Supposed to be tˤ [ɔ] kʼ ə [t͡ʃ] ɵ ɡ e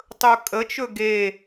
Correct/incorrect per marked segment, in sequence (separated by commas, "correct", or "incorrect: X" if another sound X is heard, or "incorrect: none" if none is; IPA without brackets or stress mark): incorrect: ɵ, correct